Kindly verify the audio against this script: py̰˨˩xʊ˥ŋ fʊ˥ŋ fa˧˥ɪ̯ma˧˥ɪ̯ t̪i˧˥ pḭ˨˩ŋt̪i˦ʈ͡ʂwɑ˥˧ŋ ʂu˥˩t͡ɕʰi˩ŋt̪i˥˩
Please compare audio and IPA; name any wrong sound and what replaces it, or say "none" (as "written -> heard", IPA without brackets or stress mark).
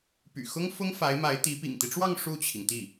none